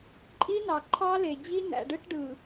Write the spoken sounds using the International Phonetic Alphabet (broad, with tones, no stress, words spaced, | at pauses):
ǃʼi˦nɑ˨ǃʰɑ˦le˨ d͡ʑi˦næ̰˨ɖɯ˦ʈ ɖɯ˨